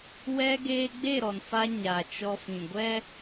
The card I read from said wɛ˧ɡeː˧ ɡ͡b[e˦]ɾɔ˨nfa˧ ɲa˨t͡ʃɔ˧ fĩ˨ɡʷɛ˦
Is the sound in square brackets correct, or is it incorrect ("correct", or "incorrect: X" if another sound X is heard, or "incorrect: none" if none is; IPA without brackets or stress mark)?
incorrect: e˦˨